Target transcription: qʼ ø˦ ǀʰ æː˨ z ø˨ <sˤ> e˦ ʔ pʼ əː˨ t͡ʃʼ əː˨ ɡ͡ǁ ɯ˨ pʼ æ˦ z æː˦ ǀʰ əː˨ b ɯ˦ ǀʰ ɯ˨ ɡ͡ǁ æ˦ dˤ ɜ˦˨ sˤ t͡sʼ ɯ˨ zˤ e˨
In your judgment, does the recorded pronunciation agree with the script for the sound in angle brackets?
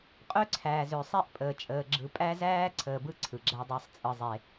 yes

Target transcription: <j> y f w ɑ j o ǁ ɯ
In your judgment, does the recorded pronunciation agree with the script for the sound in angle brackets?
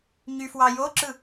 no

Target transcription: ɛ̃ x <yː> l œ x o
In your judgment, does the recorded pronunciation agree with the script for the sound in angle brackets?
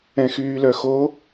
yes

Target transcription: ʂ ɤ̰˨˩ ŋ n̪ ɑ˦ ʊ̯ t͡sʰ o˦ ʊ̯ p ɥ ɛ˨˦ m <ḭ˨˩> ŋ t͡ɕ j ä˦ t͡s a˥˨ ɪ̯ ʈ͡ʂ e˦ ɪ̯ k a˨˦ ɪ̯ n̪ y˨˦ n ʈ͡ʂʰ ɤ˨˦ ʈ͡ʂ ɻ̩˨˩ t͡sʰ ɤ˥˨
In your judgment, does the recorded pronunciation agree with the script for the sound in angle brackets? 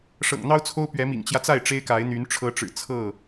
yes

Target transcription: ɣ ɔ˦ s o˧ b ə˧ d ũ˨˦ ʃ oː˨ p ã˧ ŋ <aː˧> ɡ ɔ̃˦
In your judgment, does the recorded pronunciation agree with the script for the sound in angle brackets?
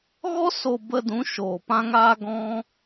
yes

